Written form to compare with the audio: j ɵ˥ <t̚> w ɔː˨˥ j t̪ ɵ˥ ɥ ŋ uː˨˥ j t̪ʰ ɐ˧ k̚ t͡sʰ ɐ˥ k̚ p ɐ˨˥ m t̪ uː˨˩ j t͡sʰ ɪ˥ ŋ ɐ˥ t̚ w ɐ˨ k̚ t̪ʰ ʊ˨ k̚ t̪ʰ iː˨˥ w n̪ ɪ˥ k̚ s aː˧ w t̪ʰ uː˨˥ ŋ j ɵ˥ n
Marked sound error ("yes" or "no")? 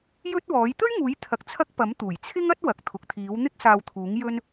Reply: no